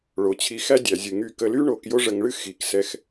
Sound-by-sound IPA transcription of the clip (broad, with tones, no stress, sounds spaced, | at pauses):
ɭ o˩ t͡ɕʰ i˨ x æ˦ dʲ æ˩ zʲ ɨ˩ ŋ y˨ k ə˨ l y˦ ɳ o˨ k j o˦ ʐ ə˨ ŋ ɭ ɨ˥ x i˩ k s ɛ˨ x